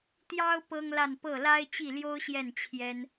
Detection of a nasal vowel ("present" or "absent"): absent